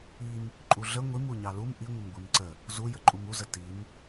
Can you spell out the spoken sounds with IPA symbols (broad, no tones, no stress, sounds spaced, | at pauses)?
i m | ǃʼ u ɮ ə ŋʷ i m u ɲ ɑ l u m ʔ i ŋʷ ə m ɡʷ i m ǀ ə | z u j ə ǃʼ u m u z ə t i m